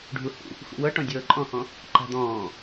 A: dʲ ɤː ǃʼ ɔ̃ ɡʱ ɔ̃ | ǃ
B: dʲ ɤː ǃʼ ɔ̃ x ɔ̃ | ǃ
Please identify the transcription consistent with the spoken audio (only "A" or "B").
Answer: B